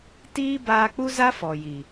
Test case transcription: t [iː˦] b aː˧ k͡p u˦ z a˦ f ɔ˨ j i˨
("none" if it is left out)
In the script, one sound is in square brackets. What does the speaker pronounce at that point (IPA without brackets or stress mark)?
iː˦